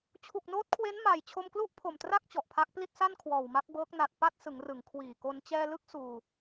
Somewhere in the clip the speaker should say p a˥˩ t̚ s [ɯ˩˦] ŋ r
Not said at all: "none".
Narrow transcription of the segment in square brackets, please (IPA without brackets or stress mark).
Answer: ɯ˩˦